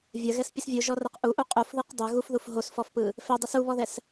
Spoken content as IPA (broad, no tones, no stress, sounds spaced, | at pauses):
vʲ ɐ ɣ ɛ s pʲ ɯ s vʲ u ʒ ɔ r ɐ q ʔ u ʔ u qʼ u f ð ɯ q dˤ ɛ ɣ u f ð u f ɦ o s f ɔ f p ɯ | f ɛ dˤ ɯ s u β ɔ ð ɛ s